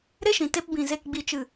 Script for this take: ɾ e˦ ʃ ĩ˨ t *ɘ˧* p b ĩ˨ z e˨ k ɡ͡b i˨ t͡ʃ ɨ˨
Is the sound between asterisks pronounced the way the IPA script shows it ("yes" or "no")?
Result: no